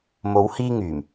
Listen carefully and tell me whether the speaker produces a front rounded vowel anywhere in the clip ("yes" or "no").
yes